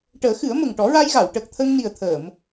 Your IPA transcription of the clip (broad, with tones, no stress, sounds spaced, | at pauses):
ʈ əː˨˩˦ x ɨ˨˩˦ ə̯ m ə˨˩ ŋ ʈ ɔ˨˩˦ ɹ a˧ j ɣ a˨˩˨ w ʈ əː˨˩ k̚ t̪ʰ ə˧ ŋ n i˨˩ ə̯ t̪ʰ əː˨˩˨ m